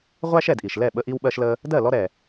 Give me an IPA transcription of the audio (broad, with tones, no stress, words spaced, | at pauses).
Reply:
ʁʷæ˥ʃɛ˥˩dʔi˩ʃlɛ˥˩ ɓə˧ʔi˧wɓɜ˧ʃlə˧ | dɜ˥˩ lɔ˥ɾɛ˩